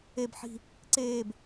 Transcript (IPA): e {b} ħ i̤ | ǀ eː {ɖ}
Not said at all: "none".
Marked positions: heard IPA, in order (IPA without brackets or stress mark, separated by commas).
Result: b, b